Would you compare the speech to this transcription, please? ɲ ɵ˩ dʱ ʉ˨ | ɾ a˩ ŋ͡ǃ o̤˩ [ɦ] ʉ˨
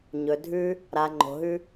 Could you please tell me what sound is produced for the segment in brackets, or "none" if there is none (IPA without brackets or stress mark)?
ɦ